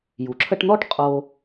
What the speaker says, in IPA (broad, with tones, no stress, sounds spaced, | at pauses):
j u˩ ǁʰ ə˦ ʈ n̪ ɔ˥ ʈ qʼ o˨